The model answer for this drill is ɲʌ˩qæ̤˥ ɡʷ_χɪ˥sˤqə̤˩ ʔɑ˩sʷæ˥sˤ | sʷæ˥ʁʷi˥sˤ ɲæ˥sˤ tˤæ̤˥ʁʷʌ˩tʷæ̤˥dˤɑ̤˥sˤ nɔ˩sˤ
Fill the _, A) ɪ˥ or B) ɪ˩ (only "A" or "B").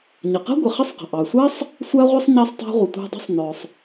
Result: B